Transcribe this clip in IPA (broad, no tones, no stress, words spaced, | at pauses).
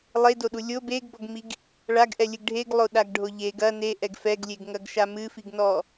lˠedoɗu lʲo beɡbɔɡmiɡ | ɭaɡʔɛlʲɨɡ ɖʱeɡlˠoɗaɡɖʱo ʎeɡ ɐ neʔɛɡ fɛɡlʲeɡŋɐɡʃa mɨfiɡnɔ